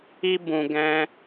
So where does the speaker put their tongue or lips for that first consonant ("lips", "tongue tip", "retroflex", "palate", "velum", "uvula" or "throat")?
lips